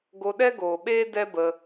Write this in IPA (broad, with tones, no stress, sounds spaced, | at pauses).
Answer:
ɡ o˧ ɗ ɛ˦ ɡ oː˨ ɓ eː˦ d ɛ˦ b ə˧